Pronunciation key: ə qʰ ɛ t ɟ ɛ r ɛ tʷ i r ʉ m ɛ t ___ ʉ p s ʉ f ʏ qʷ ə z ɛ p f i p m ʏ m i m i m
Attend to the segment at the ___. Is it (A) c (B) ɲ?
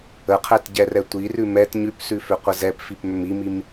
B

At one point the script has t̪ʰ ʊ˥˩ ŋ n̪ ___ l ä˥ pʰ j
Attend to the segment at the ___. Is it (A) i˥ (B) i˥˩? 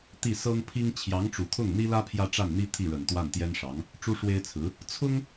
A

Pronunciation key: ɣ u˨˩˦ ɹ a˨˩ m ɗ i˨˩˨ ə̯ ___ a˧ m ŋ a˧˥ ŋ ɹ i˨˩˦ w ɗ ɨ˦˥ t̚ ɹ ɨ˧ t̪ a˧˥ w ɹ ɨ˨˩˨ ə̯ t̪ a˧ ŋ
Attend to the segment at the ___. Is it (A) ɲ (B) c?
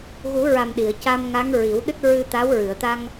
B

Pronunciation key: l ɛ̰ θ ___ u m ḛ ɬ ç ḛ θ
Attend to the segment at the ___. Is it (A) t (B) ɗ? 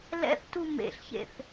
A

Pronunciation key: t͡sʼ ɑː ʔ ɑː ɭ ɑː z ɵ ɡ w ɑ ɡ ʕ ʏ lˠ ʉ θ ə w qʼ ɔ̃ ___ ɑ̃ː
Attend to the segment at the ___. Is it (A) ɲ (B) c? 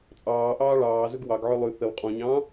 A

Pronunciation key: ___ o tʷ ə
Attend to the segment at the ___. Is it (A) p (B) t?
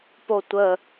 A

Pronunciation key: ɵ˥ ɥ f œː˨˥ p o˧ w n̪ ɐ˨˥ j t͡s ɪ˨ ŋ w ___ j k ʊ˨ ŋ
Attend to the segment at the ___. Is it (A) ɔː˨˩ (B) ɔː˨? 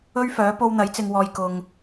B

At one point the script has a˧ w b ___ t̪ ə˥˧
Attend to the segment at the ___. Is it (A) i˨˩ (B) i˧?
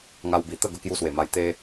A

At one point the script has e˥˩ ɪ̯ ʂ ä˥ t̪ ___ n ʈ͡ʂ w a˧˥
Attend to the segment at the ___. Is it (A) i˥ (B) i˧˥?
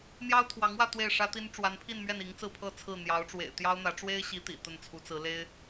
A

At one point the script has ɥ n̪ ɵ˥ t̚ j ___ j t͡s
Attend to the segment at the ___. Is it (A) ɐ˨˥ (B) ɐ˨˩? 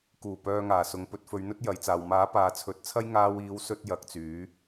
A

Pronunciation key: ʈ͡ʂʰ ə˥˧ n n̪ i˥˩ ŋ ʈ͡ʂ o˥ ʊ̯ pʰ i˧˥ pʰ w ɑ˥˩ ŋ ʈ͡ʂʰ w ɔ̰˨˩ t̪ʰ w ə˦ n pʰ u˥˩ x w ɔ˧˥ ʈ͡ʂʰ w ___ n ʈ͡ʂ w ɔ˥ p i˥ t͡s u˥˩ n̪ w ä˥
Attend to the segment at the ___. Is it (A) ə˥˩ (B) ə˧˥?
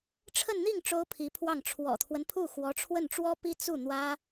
A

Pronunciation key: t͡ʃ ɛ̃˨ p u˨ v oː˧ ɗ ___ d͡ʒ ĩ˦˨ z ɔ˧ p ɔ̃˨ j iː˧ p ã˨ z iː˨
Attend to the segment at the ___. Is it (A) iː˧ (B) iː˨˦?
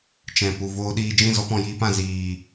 A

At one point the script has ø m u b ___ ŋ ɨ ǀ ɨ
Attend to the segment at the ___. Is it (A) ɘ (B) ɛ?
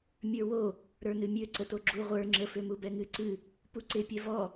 B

